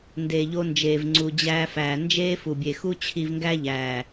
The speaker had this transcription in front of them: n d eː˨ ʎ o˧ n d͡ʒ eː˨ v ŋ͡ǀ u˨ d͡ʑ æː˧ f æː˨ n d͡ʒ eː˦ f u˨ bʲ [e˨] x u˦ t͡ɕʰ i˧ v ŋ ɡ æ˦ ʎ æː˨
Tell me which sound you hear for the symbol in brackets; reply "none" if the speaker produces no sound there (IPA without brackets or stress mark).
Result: e˨